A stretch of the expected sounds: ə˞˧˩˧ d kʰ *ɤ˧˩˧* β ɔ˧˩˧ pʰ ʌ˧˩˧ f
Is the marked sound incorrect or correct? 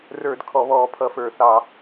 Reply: incorrect